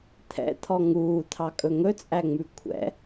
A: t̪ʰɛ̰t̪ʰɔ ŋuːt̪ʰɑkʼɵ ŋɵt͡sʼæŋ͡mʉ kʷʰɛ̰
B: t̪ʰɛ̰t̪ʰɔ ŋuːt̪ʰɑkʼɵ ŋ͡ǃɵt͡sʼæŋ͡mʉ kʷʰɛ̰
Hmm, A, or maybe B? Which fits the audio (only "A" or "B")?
A